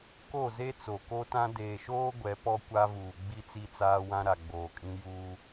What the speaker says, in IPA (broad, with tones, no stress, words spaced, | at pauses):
ko˦˨ze˦ t͡so˨ko˦tã˦ deː˨ʃoː˦ ɡʷɛ˨˦pɔ˦kʷa˦vuː˨ ɡ͡bi˦t͡si˦t͡saː˦wã˦ ɾa˨ɡ͡boː˨kʼĩ˦ juː˦